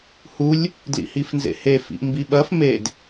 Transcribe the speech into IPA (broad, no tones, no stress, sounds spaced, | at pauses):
h u lʲ | d l ḭ h i f n z ḛ h e f ḭ ʔ m b i ɓ ɐ f m e d